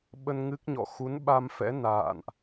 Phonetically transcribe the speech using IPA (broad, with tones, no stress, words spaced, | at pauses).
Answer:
ɓə˧n ŋɨ˦˥k̚ɲɔ̰˧˨ xu˨˦nɓa˧mfɛ̰˧˥ na̰ː˧˨nʔ